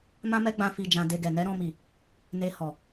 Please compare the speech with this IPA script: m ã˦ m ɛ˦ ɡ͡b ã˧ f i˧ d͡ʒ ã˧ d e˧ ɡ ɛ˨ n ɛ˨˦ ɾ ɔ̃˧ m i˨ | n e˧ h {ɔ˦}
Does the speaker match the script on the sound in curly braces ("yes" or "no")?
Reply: no